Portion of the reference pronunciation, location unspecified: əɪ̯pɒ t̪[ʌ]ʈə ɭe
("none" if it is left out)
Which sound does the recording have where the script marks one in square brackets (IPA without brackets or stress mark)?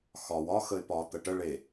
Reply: ə